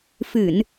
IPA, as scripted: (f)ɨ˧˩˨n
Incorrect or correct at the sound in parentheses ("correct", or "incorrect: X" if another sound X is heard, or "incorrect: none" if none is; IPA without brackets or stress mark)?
correct